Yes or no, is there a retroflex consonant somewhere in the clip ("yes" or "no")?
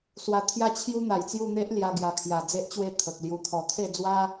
no